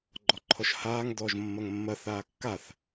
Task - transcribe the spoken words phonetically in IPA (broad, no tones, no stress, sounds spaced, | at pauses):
ɡ͡ǃ ɔ ǃʰ ɔ ʃ h aː ŋ d ɔː ʒ mː ɐ ŋ mː ɐ θ aː kː a θ